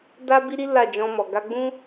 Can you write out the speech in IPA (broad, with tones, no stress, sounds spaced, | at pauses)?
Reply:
d a˦ b i˦ ɾ i˦ l a˦˨ d͡ʒ ɔ̃˧ m ɔ˨ ɡ a˧ ɡ͡b ũ˦